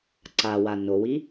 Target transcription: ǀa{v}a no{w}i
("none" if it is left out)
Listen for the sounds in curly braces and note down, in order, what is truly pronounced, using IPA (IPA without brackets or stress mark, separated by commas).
w, w